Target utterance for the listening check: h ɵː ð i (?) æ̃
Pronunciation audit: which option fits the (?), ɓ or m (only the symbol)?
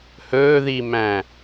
m